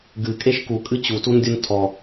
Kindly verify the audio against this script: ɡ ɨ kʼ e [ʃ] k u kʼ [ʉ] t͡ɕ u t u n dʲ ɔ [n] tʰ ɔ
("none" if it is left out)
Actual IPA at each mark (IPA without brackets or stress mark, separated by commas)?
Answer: ʃ, ɨ, n